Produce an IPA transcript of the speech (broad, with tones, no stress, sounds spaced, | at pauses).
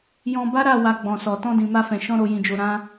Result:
j ɔ̃˧ b a˦ ɾ a˦˨ w a˧ ɡ͡b ɔ̃˨ s ɔ˨ t ɔ̃˧ d ĩ˨ m a˧ f ɛ̃˨ ʃ ɔ̃˧ ɾ o˨ j ĩ˨ d͡ʒ o˨ ɾ ã˧